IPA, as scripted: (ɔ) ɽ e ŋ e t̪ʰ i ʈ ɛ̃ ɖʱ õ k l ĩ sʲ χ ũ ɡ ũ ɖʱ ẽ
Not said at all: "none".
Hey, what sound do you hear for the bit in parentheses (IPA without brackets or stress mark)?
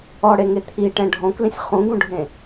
ɔ